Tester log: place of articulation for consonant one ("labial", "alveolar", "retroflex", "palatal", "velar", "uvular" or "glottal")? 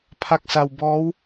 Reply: labial